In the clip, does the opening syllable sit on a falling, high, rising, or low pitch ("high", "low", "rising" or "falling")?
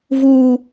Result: high